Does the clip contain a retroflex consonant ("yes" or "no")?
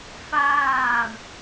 yes